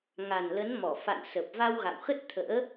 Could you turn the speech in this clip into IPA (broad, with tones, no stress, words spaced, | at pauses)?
ŋa˨˩nlə˨˦nmɔ˧˩ fa̰˧˨nsə˨˩p̚ va˧wɣa̰˧˨wxə˦˥t̚ t̪ʰə̰ː˧˥